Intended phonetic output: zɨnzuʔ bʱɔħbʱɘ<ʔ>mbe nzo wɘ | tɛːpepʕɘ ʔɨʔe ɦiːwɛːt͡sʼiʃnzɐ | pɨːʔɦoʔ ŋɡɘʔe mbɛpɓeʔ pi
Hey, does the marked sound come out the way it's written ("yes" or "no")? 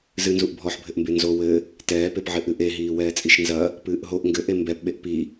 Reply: yes